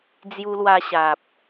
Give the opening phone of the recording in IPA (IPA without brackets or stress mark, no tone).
d͡z